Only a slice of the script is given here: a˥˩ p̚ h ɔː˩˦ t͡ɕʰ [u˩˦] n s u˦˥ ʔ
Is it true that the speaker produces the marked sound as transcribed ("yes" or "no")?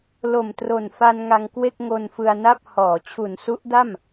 yes